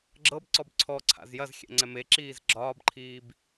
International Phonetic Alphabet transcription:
ɡ͡ǁɤbǀɔb ǀʰɔ ǀʰa̰zjɐzxʲɛ̰ ŋ͡ǀɛmeǁiːz ɡ͡ǁɒːbǃʰiːb

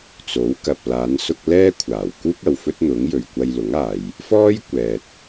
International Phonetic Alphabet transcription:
t͡so˨˥wkɐ˨p̚ laː˨˧nsʊ˧k̚ lɛː˥kʷʰaː˨˩wkuː˥k̚ ɐ˨wfɵ˥t̚n̪ʊ˨˥ŋ jɵ˨ɥkʷɐ˧jlʊ˨˥ŋaː˨j | fɔː˥jkʷɛː˨t̚

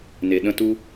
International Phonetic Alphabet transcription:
ne˨ɗə̃˦tu˦

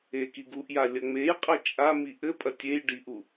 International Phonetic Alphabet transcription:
ekiɡuʔja lʲɐŋ͡mejqʼɐ t͡ʃʼami ʔɘpʼɐ tʲej ɖiʔu

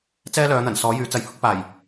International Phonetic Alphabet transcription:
t͡sɛː˥lœː˨˧n̪ɐ˨˩n sɔː˨˥jyː˨˥t͡sɐ˨˥jhʊ˥k̚ paː˨˩j

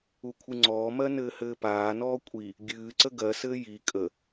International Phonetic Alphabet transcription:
ukʷʰɨŋ͡ǀɔːmɜ nɘːhɘːpaːnɔː kʷʼi | ɡʲɨːǀə ɡɜsɘː ji kʼə

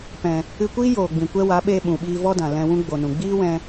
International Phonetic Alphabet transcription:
pɛ̃˨ | ɨ˧kʷiː˦ joː˨ɡ͡bĩ˨kʷɛ˦ wa˨˦ɓeː˧ ɓũ˨ɓiː˧ vɔ˦dã˨ lɛ̃˧wũ˦ ɡ͡bo˨nũ˨ɡ͡biː˦wɛ̃˧

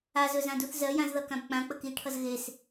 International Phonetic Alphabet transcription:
azɵzãduθ zɜjãzðʌkãb k͡pãk͡pə kiʈʰʌz ɣes

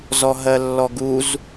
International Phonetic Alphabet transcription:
zɔɦɜlːɔɡuz

